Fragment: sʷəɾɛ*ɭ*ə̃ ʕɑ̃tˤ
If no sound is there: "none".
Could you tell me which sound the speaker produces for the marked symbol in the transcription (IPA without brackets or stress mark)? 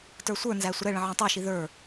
ɭ